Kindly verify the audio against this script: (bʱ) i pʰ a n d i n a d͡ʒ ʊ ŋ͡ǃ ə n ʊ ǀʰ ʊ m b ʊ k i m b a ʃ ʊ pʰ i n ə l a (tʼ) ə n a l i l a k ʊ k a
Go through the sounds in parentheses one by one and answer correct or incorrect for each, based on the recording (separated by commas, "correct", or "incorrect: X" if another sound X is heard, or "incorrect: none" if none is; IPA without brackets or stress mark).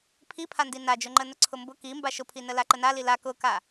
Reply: incorrect: pʰ, incorrect: ǃ